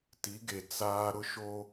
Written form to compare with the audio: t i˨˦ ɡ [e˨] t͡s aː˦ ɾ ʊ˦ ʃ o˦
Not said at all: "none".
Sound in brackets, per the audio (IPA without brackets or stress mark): e˨